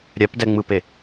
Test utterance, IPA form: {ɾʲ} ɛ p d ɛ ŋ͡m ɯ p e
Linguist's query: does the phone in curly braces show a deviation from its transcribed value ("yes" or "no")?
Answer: no